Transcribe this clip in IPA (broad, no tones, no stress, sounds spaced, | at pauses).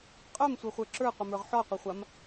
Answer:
qʼ œ m sʷ œ χʷ ə˞ ǁ ə˞ qʷ ə m ə˞ ʁ ħ ɔ qʷ ə χʷ a m